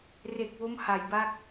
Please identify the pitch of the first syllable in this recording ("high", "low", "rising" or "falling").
low